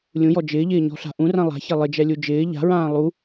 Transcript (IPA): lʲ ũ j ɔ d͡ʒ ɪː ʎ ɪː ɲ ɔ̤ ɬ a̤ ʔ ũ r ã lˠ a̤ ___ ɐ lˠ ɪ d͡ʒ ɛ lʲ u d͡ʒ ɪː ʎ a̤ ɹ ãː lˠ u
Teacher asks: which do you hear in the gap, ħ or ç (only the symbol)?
ç